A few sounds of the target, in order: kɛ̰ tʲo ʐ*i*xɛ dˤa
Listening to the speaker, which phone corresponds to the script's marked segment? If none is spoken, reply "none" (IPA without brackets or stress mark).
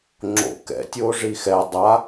i